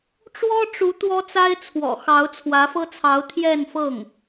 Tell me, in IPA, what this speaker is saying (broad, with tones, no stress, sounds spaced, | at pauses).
ʈ͡ʂ w ɔ˥ ʈ͡ʂ u˧˥ t̪ w ɔ˥ t͡s a˥ ɪ̯ t͡sʰ w ɔ̰˨˩ x ɑ˧˥ ʊ̯ t͡sʰ w ä˧˥ f ɤ˥ t͡sʰ ɑ˧˥ ʊ̯ t̪ʰ j ɛ˥˧ n f ɤ˥˩ ŋ